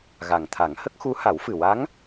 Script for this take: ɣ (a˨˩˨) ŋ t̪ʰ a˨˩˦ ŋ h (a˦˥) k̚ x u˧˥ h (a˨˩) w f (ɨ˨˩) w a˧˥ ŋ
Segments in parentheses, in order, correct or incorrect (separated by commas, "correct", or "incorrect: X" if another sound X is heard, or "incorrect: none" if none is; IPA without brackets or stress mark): incorrect: a˨˩, incorrect: ə˦˥, incorrect: a˨˩˦, correct